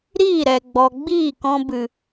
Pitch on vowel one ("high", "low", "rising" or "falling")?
falling